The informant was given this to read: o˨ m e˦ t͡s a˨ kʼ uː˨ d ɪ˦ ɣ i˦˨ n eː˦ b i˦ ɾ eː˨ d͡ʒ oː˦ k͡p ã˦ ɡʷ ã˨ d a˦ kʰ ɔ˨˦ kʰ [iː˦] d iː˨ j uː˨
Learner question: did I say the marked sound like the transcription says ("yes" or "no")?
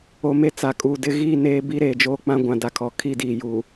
no